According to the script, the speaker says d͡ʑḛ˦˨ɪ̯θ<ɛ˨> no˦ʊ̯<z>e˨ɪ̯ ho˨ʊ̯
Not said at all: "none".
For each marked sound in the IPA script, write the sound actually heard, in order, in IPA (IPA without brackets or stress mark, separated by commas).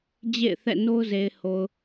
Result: ɛ̰˦˨, z